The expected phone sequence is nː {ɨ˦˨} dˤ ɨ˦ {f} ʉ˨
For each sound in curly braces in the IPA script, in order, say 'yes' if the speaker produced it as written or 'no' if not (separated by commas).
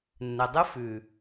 no, yes